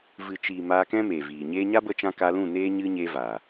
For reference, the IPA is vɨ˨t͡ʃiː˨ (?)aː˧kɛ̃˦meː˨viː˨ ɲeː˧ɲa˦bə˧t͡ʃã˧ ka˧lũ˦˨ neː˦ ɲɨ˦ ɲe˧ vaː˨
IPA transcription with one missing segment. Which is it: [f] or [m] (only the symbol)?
m